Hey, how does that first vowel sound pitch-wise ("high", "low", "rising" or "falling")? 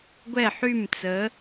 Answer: falling